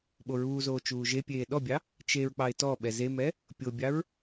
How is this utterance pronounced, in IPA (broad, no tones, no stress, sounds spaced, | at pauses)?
ɓ o ɹ uː z oː t͡ʃ uː ʒ e pʲ eː ɗ ɔ bʲ ɑ | t͡ʃ e ɹ k͡p ɑ ɪ̯ t ɔ ɓ ɛ z e m ɛ | pʲ o bʲ ɑ ɹ